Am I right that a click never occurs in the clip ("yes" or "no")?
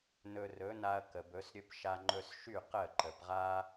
no